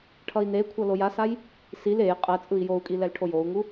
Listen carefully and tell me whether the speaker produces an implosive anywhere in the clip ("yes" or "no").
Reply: no